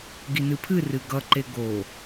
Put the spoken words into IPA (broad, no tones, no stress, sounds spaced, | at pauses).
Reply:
ɡ i n ɨ pʰ ɨ r ɨ ɡ ʌ ǃ e ɡ o